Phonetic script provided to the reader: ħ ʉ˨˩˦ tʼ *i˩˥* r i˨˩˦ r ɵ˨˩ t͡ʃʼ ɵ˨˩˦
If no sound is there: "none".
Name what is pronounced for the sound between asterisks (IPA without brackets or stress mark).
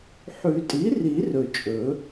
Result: i˩˥